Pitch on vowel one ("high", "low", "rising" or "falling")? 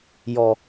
high